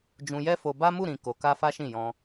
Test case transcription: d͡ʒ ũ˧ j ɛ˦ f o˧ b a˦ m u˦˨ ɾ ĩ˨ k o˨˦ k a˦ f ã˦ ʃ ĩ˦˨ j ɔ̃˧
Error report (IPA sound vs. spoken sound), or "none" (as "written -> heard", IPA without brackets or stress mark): ã˦ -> a˦